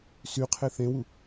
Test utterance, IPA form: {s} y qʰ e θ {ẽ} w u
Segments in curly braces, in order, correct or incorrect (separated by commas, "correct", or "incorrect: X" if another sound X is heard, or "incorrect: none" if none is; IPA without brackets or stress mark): correct, correct